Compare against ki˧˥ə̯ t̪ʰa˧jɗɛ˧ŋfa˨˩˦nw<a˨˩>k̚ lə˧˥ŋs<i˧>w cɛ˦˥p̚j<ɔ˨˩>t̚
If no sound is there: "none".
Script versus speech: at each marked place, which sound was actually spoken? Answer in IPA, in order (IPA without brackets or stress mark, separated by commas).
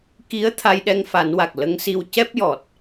a˨˩, i˧, ɔ˨˩